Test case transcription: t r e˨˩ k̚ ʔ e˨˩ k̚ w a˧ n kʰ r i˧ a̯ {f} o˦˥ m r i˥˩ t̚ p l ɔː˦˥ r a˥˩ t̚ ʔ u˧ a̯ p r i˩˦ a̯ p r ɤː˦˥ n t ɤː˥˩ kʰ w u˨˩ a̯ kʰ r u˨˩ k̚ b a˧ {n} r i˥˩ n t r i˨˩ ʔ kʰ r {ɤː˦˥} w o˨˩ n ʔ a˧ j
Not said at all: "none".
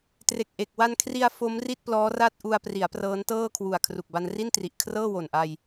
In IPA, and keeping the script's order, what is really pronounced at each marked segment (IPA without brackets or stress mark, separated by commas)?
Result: f, n, ɤː˥˩